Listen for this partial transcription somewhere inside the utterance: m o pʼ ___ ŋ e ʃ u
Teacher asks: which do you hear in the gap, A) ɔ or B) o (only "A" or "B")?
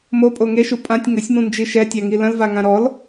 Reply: B